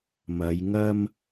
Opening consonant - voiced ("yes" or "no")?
yes